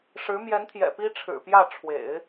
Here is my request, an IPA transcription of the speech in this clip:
ʂɻ̩˧˥ mjɛ˧˥nt̪ʰjɛ̰˨˩ pi˥ ʈ͡ʂʰɻ̩˨˩ pjä˥˩ ʈ͡ʂʰwḛ˨˩˦ɪ̯

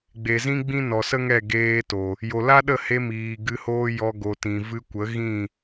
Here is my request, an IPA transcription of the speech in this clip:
ɡ͡be˨zĩ˦ɡ͡bĩ˦ nɔ˨sə˦ ŋɛ˦˨ɡeː˧to˨ | jo˨la˦ ɗə˦˨he˧miː˨ ɡɨ˧hoː˦jɔ˧ ɡo˨tĩ˨ vɨ˧kʷə˨˦ ɣĩ˦˨

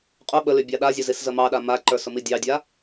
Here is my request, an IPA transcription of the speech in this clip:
qʼʊ ɓəly bʲɑɗazʲʊ ziszəmɑɗa maǃə˞s ʊmidʲɑdʲa

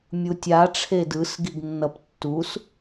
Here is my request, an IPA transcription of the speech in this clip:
mʲutʲa ʈ͡ʂʰedɯs ɡiɡnːʌp tːus

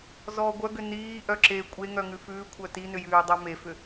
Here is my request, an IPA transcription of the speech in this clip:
zɔːɡʷœɡʏ niː ʔœǁe kʷʼe ŋœŋʉfʉː kʷʰœtinʏjʉː dˤœmefʏ

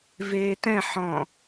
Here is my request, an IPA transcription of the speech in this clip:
veːtɛ̃ ħɔ̃

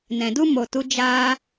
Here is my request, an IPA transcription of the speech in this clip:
nɛ̃˨du˦mo˨tu˧ d͡ʒaː˧

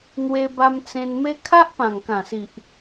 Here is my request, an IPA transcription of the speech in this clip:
n̪we˧ba˧m t͡sẽ˧nme˦ kʰa˦ʔpã˨˩ŋkã˨˩si˨ʔ

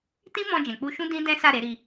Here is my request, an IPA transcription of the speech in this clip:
tĩ˦mɔ̃˧ d͡ʒɛ̃˨k͡pu˧ʃũ˦ dĩ˦dɛ̃˦sa˦˨ ɾe˨˦ɾi˧

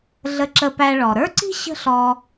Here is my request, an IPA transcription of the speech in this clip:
ɮə˧ǁə˧pæ˧ɭɔ˩ ɾə˞˥ǀi̤˥ ɕə̤˥ɬɔ˧

